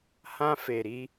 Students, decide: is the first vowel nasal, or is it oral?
nasal